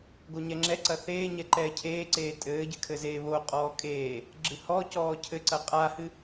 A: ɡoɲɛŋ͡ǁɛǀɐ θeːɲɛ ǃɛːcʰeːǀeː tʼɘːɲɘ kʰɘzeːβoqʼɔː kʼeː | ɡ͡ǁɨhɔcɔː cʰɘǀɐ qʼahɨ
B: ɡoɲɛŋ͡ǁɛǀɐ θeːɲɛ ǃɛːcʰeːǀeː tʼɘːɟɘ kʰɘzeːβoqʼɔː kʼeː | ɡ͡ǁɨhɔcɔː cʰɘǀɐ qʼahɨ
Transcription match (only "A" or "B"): B